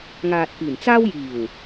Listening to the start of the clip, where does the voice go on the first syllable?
low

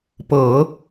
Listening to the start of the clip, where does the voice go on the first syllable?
low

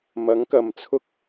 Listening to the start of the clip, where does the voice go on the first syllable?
rising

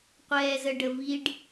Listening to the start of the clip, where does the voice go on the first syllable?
low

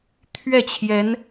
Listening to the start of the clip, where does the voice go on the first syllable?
falling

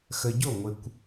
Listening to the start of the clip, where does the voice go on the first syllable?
low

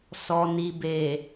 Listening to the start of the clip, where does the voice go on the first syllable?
low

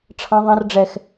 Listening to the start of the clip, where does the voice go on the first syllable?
high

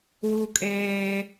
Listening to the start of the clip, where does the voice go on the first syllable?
high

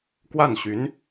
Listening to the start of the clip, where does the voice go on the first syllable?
falling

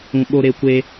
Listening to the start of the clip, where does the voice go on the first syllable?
high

